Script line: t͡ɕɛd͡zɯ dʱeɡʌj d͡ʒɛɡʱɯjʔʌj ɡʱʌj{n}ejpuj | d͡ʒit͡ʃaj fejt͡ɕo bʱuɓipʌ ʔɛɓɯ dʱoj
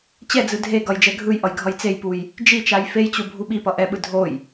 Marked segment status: incorrect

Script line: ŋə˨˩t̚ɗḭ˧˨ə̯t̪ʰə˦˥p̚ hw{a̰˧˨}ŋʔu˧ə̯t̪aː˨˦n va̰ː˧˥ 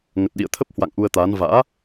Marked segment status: correct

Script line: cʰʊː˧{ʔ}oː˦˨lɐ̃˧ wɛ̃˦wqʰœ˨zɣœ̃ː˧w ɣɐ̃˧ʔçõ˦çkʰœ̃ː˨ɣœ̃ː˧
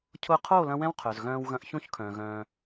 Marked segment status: incorrect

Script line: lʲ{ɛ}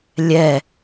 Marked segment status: correct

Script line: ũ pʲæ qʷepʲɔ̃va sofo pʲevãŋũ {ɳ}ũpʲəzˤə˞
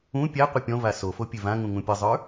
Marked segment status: incorrect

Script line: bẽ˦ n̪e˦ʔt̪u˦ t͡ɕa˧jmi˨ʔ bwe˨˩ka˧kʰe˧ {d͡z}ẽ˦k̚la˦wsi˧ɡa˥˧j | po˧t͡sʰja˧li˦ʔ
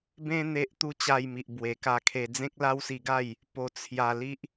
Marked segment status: correct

